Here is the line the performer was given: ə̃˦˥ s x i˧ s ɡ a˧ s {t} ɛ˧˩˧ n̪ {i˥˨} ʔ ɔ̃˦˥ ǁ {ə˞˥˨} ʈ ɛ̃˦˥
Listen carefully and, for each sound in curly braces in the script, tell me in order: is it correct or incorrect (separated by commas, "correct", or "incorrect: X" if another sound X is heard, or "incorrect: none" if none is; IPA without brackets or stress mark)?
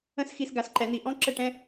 incorrect: ǃ, incorrect: i˧˩˧, incorrect: ə˥˨